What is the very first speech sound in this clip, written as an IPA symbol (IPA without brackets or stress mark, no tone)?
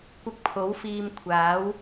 kʷ